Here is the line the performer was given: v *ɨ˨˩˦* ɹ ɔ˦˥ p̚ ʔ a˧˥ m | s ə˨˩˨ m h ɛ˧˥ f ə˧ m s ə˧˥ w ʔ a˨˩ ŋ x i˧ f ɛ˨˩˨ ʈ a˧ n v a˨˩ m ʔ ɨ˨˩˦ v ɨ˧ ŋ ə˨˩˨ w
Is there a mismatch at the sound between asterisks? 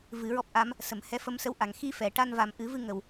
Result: no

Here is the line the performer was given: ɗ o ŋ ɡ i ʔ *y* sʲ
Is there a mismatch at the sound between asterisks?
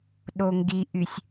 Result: no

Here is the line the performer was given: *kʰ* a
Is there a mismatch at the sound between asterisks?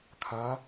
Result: no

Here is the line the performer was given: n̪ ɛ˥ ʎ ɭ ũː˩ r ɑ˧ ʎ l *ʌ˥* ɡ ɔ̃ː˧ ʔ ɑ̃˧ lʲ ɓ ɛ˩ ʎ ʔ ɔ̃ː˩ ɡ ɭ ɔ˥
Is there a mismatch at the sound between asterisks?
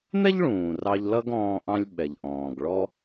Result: no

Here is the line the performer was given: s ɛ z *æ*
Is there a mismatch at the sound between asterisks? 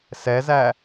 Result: no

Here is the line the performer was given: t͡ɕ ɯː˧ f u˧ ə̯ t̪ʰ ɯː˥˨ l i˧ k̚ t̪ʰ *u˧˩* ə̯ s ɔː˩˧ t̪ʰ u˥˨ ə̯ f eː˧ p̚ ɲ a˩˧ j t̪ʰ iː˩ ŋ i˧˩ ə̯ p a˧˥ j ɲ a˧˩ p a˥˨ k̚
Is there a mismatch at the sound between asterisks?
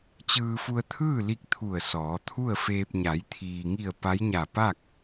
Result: no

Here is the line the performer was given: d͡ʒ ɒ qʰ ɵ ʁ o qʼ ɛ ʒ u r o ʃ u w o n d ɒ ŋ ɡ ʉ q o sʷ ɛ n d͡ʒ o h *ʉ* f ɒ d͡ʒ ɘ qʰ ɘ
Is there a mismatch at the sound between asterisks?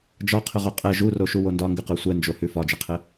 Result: no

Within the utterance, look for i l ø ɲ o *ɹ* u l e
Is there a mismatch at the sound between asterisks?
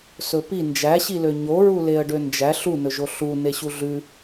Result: no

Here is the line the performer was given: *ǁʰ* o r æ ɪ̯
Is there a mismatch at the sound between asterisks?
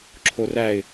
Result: no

